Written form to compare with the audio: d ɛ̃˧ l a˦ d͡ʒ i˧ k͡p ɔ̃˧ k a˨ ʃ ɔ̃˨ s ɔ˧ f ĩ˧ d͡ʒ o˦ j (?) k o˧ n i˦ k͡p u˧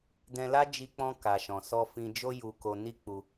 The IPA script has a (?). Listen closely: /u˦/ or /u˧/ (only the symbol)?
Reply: u˧